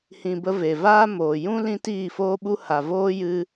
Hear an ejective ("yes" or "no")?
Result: no